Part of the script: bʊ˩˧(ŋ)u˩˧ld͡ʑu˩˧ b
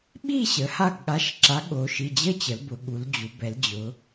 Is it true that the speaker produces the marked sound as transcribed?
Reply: no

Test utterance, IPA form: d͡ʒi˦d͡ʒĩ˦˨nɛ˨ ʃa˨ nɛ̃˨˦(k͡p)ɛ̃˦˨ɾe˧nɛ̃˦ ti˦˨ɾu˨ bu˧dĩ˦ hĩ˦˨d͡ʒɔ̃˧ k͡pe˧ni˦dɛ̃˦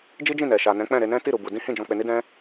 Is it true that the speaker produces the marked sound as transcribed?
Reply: yes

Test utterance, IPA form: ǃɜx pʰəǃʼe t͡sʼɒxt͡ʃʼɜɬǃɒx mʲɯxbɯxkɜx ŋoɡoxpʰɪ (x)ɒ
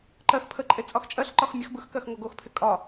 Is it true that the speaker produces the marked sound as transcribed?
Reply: no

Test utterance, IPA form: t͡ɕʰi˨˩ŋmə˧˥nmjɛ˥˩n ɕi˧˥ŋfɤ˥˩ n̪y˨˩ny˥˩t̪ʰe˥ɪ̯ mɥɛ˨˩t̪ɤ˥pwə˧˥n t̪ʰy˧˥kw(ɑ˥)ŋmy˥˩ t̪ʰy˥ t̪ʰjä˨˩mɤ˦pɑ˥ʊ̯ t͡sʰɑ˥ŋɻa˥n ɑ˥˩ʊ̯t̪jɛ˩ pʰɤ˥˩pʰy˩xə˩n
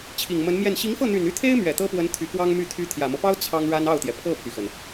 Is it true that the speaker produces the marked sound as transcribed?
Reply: yes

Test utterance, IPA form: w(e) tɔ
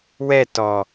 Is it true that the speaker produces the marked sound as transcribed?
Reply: no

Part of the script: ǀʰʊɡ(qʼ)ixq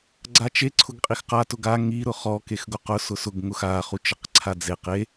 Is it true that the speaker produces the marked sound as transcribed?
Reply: yes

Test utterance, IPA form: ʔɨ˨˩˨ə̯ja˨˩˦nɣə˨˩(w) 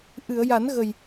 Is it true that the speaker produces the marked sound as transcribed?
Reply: no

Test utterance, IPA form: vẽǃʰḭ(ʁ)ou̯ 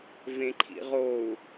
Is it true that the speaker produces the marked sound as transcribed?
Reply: yes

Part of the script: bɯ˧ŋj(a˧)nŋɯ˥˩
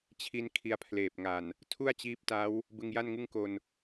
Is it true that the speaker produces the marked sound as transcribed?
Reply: no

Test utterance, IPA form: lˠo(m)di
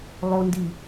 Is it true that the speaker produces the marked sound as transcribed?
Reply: no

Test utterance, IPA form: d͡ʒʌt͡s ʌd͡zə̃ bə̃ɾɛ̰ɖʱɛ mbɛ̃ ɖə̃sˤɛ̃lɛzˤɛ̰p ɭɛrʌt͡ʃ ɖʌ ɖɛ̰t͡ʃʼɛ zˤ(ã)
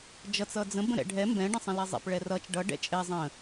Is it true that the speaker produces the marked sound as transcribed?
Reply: no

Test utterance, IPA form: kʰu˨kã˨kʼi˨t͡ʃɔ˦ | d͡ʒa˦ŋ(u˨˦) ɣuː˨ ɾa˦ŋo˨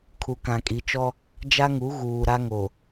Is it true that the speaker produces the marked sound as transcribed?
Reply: yes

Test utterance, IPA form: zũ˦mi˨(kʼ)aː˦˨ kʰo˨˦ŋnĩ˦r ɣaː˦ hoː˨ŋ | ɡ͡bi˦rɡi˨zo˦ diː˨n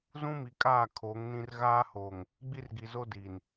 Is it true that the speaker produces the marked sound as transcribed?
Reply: yes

